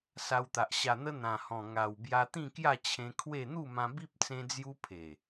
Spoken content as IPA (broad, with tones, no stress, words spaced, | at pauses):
sa˧wt̪a˨ʔ ɕa˨˩n̪ə˧ n̪ã˨˩hɔ̃˨˩ ŋa˨˩w bja˧t̪ĩ˥˧kja˥˧ t͡ɕʰẽ˧ kʰwe˥˧ n̪u˥˧mã˧bi˦p̚ t͡sẽ˦d͡zju˦pʰe˨˩